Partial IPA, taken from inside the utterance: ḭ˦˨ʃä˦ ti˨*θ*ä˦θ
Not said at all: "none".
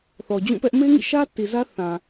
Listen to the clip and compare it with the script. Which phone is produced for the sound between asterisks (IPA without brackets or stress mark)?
z